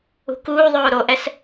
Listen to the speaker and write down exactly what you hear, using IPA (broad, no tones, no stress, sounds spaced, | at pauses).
ṳ k uː ðˤ oː ɾ o ʔ ɛ s